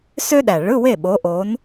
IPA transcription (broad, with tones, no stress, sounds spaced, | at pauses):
s ø˥ ɗ æ˨˩ ɭ ɯ˧˥˧ w e˥˩ ɓ o˨˦ ʔ o˨˦ n